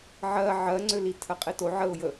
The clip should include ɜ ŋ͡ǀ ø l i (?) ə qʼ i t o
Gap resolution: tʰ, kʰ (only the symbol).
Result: tʰ